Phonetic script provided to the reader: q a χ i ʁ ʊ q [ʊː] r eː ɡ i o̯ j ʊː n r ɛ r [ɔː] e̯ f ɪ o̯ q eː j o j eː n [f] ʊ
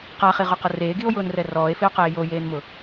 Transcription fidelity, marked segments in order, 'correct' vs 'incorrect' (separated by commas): incorrect, correct, incorrect